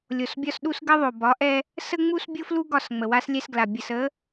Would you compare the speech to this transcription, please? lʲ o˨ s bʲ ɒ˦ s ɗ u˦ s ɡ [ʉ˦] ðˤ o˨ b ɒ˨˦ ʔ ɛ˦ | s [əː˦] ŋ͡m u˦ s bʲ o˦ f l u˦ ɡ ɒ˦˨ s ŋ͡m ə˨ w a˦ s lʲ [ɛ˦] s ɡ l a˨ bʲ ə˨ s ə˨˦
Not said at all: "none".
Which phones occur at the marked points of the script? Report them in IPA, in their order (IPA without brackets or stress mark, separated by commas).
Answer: ə˦, ə˦, ɛ˦